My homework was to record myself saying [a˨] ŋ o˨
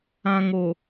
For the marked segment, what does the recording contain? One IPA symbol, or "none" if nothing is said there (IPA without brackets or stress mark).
ã˨